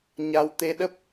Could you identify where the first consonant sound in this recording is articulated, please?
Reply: palatal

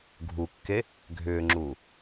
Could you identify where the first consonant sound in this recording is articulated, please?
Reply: velar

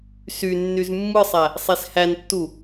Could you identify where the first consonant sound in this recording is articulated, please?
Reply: alveolar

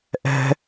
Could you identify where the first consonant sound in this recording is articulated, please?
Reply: glottal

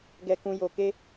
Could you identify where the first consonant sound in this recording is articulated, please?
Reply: velar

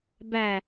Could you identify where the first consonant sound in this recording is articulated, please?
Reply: labial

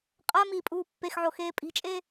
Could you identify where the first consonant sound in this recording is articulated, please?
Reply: uvular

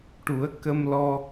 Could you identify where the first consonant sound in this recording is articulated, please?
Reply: retroflex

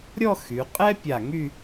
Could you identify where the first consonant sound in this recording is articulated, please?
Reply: alveolar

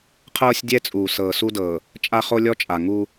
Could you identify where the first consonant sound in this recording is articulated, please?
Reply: uvular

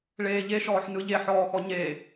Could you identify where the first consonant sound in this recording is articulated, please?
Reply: retroflex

